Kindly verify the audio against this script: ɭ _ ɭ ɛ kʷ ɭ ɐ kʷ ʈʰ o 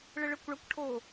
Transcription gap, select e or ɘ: ɘ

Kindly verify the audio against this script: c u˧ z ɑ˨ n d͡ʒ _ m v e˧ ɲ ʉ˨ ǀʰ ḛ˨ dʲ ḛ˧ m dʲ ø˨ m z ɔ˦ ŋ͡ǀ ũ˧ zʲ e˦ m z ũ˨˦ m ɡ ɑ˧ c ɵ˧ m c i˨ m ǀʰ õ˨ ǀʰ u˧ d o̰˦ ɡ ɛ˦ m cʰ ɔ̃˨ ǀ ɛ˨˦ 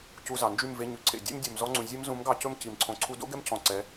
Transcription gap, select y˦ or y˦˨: y˦˨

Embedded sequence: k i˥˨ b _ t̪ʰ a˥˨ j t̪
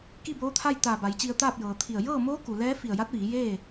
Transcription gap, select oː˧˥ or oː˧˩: oː˧˥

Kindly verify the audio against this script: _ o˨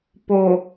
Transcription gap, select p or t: p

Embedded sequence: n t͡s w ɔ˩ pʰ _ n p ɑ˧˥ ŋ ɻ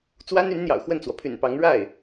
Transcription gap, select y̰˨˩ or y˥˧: y̰˨˩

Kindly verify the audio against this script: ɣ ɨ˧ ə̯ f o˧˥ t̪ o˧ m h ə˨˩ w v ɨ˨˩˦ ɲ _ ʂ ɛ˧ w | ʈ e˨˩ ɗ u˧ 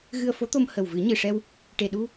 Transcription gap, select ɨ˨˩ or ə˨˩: ɨ˨˩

